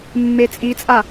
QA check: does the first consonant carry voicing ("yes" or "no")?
yes